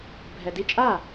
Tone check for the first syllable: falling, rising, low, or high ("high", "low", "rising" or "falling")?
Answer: low